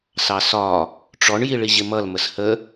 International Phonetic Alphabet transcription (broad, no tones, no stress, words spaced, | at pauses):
sɑsɒ | ʈ͡ʂɔɳ jiɭiʑɪmʌl məshə